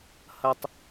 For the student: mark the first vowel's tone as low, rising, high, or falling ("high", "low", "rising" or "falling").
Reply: high